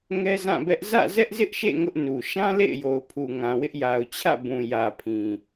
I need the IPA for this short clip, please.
ŋ ɛ˦ z ã˦˨ b ɛ˦ ʔ z ä̰˦˨ z ɛ˦ ʔ z ɪ˦ ʔ ʃ ḛ˦˨ ŋ ʊ˦ ʔ n u˨ ʃ ã˦ l ḛ˦˨ ɪ̯ j o˨ ʊ̯ pʰ u˨ ŋ ã˨ w ɪ˦ ʔ j a˨ ʊ̯ t͡ɕʰ ä̰˦˨ b ũ˨ j ä˨ pʰ ĩ˨

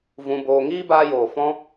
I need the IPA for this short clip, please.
v ũ˧ b oː˧ ŋ iː˦ b aː˧ j oː˨ f ɔ̃˦

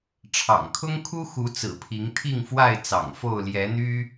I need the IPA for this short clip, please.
ʈ͡ʂʰ ɑ̰˨˩ ŋ kʰ ʊ˦ ŋ kʰ u˦ x u˨˦ t͡s ɹ̩˨˩ pʰ i˨˦ ŋ t̪ʰ i˥˨ ŋ f w a˥˨ ɪ̯ t͡s ɑ̰˨˩ ŋ f o˥˨ ʊ̯ l j ɛ˨˦ n̪ y˦

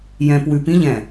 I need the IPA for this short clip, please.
j ɛ̃ p w ʉ p ĩ ʎ ɛ̃

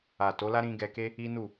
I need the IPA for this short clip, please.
a˨ t o˨˦ l a˦ ɾ ĩ˧ ɡ ɛ˧ k e˦ | i˦ n u˦˨

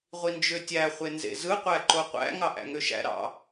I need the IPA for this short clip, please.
ʁʷ i n d͡ʒ ø tʲ æ χʷ e n z ḛ z ɯ qʷ æ ǃ o qʷ æ̰ ŋ ɑ ʔ æ̰ ŋ ø ʃ æ̰ ɾ ɑ̰

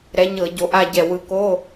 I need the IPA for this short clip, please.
ɾ ɛ˨˦ ɲ ɤ˧˩˧ ɟ o˨˦ ʔ a˥˧ ɟ ɛ˧˩ w ɯ˨˦ k o˧˥˧

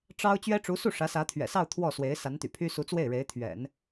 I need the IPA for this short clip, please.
ʈ͡ʂ ɑ˥ ʊ̯ t͡ɕ ɥ ɛ˥ ʈ͡ʂ u˧˥ s u˥˩ ʂ ä˧˥ s ä˧˥ t̪ʰ ɥ ɛ̰˨˩ s ɑ˥˧ ʊ̯ t̪ʰ w ɔ˥˩ s w e˧˥ ɪ̯ s a˧˥ n t̪ y̰˨˩ pʰ y˥ s u˧˥ t͡s w e˥˩ ɪ̯ ɻ e˧˥ ɪ̯ t̪ʰ ɥ ɛ̰˨˩˦ n

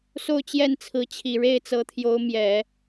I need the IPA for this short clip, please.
s o˥˧ ʊ̯ t͡ɕ j ɛ˥˩ n t͡sʰ ɹ̩˧˥ t͡ɕʰ i˨˩ ɻ e˥˩ ɪ̯ t͡s ɤ˧˥ t̪ʰ j o˧˥ ʊ̯ m j ɛ˨˩˦

